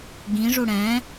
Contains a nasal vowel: yes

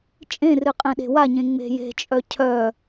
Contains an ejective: yes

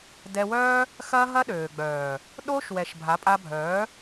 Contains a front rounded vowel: yes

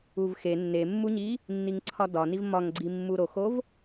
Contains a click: yes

